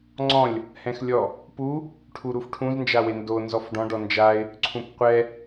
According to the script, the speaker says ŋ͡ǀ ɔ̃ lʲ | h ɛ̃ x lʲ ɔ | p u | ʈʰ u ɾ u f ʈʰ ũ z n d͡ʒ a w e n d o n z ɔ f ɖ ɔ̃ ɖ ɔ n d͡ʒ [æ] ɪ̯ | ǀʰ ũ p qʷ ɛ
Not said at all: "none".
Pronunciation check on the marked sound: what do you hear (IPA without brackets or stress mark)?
a